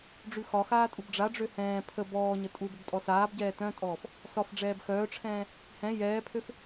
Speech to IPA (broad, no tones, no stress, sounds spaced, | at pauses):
ɖ͡ʐ ʉ x ɒ x aː tʼ u b ɖ͡ʐ a ɖ͡ʐ ø h ɛ̃ː pʰ ə b ɔː ɲ ə tʼ u b ə b tʼ ɔ s aː b ɟ ɛː t œ̃ tʼ ɔː f | s ɒ f ɖ͡ʐ ɛː b x œː ʈ͡ʂʰ ɛ̃ː | h ɛ̃ j ɛː pʰ ø f